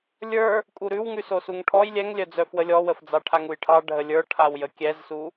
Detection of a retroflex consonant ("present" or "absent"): present